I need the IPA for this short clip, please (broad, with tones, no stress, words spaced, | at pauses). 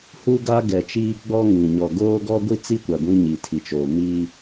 huː˦ ɡa˦ɡɛ˨t͡ʃiː˦ɡ͡bɔ˦ ŋĩ˨ ɲɔ˨ɡoː˦ ɡɔ˦ɡʷi˦t͡si˦kʷa˨ ɡʷĩ˦ɲi˨tʰi˨t͡ʃoː˨ mi˦